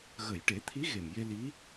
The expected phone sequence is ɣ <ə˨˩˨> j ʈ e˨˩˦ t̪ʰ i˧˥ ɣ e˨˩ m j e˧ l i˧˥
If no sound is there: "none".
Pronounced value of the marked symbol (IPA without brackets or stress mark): ə˨˩˨